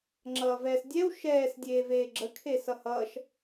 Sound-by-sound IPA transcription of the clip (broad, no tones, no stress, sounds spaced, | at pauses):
ŋ͡ǁ ʌː v ɛː s dʲ ɛ w ʃ ɛː s dʲ eː v eː ɡ͡ǁ ə kʰ e s ʌ h ʌː ʃ